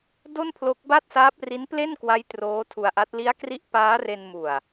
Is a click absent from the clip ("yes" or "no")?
yes